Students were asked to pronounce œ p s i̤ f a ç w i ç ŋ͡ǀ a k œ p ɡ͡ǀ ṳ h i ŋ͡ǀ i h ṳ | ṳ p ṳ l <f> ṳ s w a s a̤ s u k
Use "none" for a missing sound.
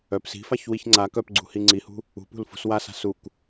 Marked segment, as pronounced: f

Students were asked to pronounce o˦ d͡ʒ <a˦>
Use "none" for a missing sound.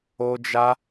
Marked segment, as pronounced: a˦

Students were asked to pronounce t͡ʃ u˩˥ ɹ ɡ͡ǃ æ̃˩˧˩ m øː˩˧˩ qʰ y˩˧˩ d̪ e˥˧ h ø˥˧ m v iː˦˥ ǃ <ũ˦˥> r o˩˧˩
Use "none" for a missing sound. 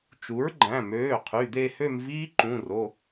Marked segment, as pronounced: ũ˩˧˩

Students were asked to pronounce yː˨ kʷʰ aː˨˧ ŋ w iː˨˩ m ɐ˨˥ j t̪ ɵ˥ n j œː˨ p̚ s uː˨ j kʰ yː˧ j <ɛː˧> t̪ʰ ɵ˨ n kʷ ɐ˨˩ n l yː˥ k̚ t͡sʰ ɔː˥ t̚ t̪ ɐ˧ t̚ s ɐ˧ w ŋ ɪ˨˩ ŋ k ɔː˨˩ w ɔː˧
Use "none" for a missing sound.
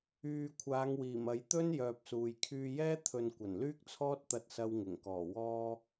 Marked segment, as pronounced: ɛː˥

